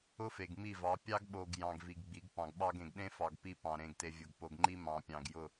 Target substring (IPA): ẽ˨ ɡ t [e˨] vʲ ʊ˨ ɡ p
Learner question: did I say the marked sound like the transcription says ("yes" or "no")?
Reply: yes